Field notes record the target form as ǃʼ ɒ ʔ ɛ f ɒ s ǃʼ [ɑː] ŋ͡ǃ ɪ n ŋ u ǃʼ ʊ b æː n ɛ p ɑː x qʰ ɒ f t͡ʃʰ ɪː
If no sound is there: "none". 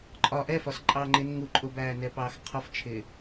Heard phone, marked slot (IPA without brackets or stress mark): ɑː